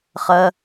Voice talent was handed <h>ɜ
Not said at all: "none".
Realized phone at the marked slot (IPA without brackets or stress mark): χ